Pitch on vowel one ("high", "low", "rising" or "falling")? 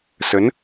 rising